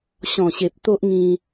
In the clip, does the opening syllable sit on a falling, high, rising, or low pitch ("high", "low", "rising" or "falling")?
low